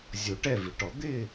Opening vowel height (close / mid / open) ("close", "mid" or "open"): mid